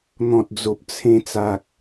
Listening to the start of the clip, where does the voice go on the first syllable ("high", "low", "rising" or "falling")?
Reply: low